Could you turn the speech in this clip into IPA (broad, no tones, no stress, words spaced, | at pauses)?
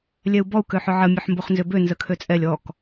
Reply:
lʲɛu̯bɔu̯ køħʏʕə mʲøħmboχnzʏbø nzəkʰøt͡sʼɛlʲ ɔk